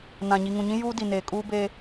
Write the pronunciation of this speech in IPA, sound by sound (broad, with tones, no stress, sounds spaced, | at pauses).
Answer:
n ã˨ ɲ i˨ ŋ ũ˨ ɲ ĩ˦ j uː˦ d i˨ n eː˨ kʼ uː˦ b e˦